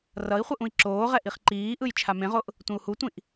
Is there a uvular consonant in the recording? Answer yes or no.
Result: yes